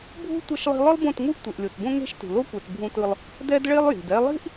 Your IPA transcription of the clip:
bʱ ṳ˦ tʷ ʌ˦ ʃ lˠ i̤˦ lˠ ɯ˦ lˠ b õ˦˨ t ŋ u˦ ʔ tʷ e˨ ʔ lʲ o˨ t b õ˦ ŋ e̤˦ ʃ t ṳ˨ l o˦ kʷ ɛ˨ t bʱ ũ˦ t ɯ˦ lˠ | d ɛ˦ d ɭ e˦ lˠ j i̤˨ d ɛ˦ lˠ i̤˦ ʔ

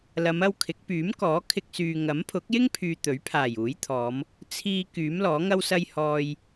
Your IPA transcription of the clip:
l ɐ˨˧ m ɐ˥ w kʰ ɪ˨˥ k̚ p yː˨˥ m k ɔː˨˥ kʰ ɪ˧ k̚ s yː˨ ŋ ɐ˨˥ m pʰ ʊ˨˥ k̚ j ɪ˥ ŋ pʰ yː˨ t̪ ɵ˨˥ ɥ pʰ aː˨˩ j uː˨˥ j t̪ʰ ɔː˨˧ m | t͡sʰ iː˧ k yː˨˥ m l ɔː˨˥ ŋ ɐ˥ w s ɐ˥ j h ɔː˧ j

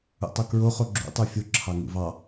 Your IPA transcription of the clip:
ṵ tˤ o k ɹ o χ o ɡ͡ǁ ṵ tˤ u fʲ o ǁʰ ɑ ŋ ṵ v ɑ

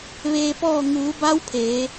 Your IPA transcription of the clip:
ʋ eː˧ p ɔː˥˨ ŋ uː˩˧ b a˧˥ w pʰ eː˩˧

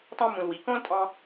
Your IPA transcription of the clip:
t ɑ̃˦ m ũ˧ l w i˨˦ k õ˦ l tʼ ɑ̃˧

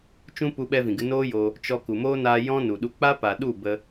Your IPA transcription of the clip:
t͡ʃ ũ˦ p u˧ ɓ ɛ˧ v ĩ˨ ɡ ɨ˧ n oː˦ j o˧ | t͡ʃ ɔ˧ k u˨ m oː˦ n aː˧ j ɔ̃˦ n u˨ ɗ u˧ k͡p a˦ p a˨ ɗ u˦˨ b ə˧

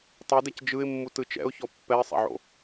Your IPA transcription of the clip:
tˤ ɤ d ɛ c d͡ʒ ɯ ɪ̯ mː u t ɯ t͡ʃ ɛ̰ ʊ̯ ç ɔ pː ɛ ɪ̯ sˤ ɛ̰ ʕ o̰

